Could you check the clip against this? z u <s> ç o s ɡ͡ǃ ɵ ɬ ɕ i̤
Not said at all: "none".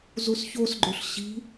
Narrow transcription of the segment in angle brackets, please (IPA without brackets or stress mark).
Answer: s